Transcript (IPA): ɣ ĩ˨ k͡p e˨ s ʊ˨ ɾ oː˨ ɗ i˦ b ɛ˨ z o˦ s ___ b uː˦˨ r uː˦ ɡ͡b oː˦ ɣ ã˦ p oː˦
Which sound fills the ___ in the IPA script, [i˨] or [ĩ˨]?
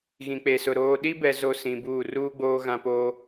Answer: ĩ˨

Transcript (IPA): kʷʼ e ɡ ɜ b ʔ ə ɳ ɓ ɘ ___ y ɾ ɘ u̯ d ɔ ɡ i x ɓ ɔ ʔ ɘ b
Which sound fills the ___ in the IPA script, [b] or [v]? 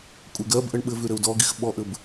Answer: v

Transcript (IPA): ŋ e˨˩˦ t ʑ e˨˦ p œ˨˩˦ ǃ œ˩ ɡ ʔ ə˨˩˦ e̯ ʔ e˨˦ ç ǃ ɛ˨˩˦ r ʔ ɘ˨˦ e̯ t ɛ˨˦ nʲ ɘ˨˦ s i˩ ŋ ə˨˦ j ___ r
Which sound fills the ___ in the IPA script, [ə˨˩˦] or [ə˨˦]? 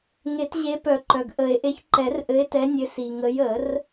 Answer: ə˨˩˦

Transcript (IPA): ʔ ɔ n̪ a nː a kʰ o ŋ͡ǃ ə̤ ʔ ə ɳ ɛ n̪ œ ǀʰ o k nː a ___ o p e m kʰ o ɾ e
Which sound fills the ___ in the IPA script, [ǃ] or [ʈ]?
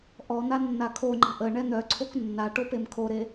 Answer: ʈ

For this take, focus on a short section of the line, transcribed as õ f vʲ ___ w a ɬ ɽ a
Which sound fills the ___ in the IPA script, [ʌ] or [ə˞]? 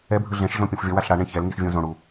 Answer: ʌ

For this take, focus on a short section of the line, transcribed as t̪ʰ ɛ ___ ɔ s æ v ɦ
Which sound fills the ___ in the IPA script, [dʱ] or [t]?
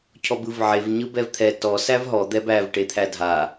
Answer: t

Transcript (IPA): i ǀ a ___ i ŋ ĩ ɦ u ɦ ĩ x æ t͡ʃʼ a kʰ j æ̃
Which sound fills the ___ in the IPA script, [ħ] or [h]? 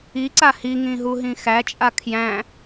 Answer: h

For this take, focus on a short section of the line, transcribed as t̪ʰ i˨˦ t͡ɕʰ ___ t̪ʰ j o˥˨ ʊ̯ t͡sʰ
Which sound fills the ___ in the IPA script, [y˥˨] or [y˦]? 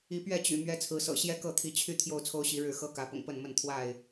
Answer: y˥˨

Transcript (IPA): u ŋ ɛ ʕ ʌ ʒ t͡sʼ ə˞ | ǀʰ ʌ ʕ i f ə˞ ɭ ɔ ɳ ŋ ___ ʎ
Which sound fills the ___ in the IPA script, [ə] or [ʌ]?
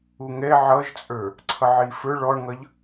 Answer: ʌ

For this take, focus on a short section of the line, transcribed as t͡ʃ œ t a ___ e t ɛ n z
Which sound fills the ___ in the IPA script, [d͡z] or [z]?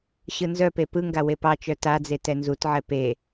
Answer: d͡z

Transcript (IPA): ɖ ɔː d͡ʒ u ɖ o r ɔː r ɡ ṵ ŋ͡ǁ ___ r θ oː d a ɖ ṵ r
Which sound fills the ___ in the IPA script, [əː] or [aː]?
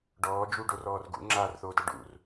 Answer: aː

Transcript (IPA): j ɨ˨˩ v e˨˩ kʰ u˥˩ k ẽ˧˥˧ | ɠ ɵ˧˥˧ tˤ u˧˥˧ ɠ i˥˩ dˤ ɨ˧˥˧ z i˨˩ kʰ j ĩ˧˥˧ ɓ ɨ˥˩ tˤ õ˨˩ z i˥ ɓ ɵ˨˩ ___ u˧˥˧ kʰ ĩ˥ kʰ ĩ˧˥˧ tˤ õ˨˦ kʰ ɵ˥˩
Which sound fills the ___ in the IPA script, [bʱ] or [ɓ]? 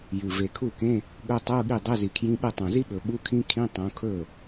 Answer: ɓ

